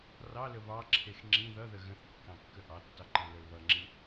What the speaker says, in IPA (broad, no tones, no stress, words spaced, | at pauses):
rɑlə βɑǁʰex ŋ͡ǁĩ ðʌðə ɣə̃θ kːɑ̃kːəʔɑtːɑ ǃɑ̃lə˞lβʌŋ͡ǁĩ